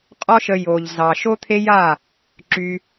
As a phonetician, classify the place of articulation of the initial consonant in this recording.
uvular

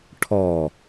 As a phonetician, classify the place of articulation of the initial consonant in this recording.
retroflex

